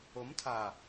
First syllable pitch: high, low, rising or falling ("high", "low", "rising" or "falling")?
rising